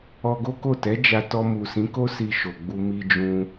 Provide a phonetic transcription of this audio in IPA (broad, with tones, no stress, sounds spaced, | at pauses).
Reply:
ɔ˧ ɡ o˦ k o˦˨ t ɛ˨˦ d͡ʒ a˧ t ɔ˧ m u˨ s ĩ˨˦ k o˦ s i˧ ʃ o˨ ɡ͡b u˧ m i˧ d͡ʒ ũ˧